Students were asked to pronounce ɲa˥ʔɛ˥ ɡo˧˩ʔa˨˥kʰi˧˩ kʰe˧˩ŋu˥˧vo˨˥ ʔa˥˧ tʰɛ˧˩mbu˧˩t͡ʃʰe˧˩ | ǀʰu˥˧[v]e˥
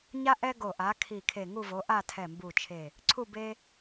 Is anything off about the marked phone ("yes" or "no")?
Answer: yes